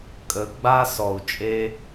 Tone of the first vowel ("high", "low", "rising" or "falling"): rising